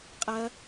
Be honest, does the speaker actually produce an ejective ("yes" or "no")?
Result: yes